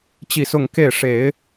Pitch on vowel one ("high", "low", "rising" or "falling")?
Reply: falling